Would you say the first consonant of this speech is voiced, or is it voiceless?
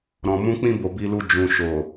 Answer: voiced